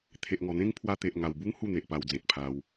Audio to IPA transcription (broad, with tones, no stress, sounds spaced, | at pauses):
t̪ʰ e˨ ʔ ŋ ɔ˨˩ n̪ ẽ˦ ŋ pʰ w a˧ t̪ e˨ ʔ ŋ a˨˩ w b u˦ ŋ h u˥˧ n̪ e˨ ʔ p a˧ w d͡z ẽ˨ t̚ pʰ a˧ w